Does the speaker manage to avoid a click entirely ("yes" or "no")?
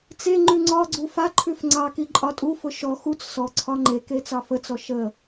no